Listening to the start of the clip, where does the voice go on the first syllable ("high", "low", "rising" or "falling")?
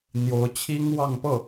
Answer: rising